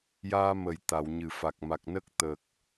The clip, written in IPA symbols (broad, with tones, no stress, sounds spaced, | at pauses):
j aː˧ m ə˨˩˨ j t̪ a˨˩˨ w ɲ ɨ˨˩˨ f a˨˩ k̚ m a˨˩ k̚ n ə˦˥ k̚ t̪ ə˨˩ k̚